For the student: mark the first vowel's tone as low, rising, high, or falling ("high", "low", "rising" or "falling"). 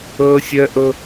high